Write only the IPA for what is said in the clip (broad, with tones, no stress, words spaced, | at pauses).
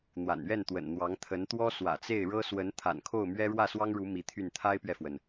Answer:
n̪wa̰˨˩nɥɛ˥˩nt̪wə̰˨˩n n̪wɑ˧˥ŋt̪ʰə˧˥nt̪wɔ˥ swä̰˨˩t͡se˥˩ɪ̯ɻɤ˥ swə˧˥n t̪ʰa̰˨˩nkʰo˥˩ʊ̯mɥɛ˥ ɻwä˥˩ swɑ˥ŋɻu˧˥ mi˧˥t̪ʰy˥˩n t̪ʰa˥ɪ̯pɥɛ˨fwə˩n